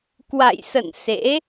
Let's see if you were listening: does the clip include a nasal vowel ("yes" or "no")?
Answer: no